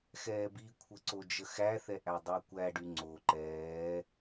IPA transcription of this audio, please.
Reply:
x ɛː b i kʷʰ ə ǀ o d͡ʒ ə x æ θ ɛ ʔ æ dˤ æ kʷ æ ɖ y ŋ͡ǀ o ǃ ɛː

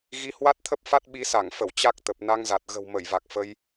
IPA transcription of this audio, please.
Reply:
ɣ i˧ h w a˦˥ t̚ t̪ʰ ə˦˥ p̚ f a˦˥ t̚ ɓ i˧ s a˧˩ ŋ f ə˧˩ w t͡ɕ a˦˥ k̚ t̪ ə˨˩ p̚ n a˧ ŋ z a˨˩ t̚ ɣ ə̤˨˩ w m ə˧˩ j v a˨˩ k̚ f ə˧ j

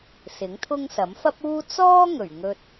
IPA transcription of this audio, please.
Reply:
s ɪ˨˥ ŋ t̪ʰ ʊ˥ ŋ s ɐ˨˥ m f ɐ˥ p̚ uː˥ t͡s ɔː˥ ŋ ɵ˨˩ ɥ ŋ ɵ˧ t̚

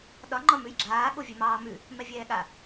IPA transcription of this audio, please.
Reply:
ɗ ɒ ŋ͡ǃ ɒ m ʉ j ɡ͡ǁ aː ɠ o vʲ ɛ m ɑː m ʉ | m ɛ vʲ ɛː ɠ a

